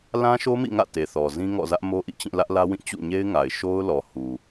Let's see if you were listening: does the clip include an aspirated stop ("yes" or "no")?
no